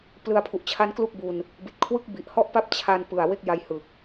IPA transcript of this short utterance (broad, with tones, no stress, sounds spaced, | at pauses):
p l ɯ˧ a̯ pʰ u˨˩ ʔ t͡ɕʰ a˦˥ n k l u˥˩ k̚ b u˧ n | b i˨˩ t̚ kʰ w ɯ˥˩ k̚ b i˨˩ ʔ h ɔ˥˩ ʔ p a˥˩ p̚ t͡ɕʰ a˧ n p ɯ˨˩ a̯ w e˦˥ k̚ j a˧ j h ɯ˨˩ k̚